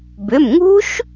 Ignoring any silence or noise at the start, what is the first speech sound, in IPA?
b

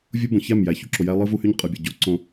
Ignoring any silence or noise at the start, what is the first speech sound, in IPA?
vʲ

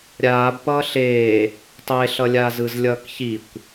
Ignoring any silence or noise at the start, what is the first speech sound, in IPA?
ɾʲ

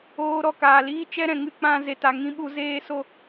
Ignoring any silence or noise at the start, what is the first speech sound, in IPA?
oː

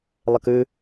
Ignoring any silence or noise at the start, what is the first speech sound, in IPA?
lˠ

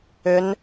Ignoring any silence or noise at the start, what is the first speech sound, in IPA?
ʏ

